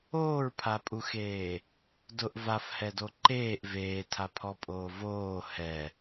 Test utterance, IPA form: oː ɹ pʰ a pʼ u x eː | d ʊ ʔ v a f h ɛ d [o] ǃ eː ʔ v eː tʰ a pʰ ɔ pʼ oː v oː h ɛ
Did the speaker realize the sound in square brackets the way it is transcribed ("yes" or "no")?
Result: yes